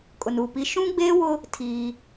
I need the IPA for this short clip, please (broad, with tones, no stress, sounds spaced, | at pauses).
kʼ ʊ˨ n uː˨ p i˦ ʃ ũ˦ ɡ͡b eː˦ w ʊ˦ | tʰ iː˦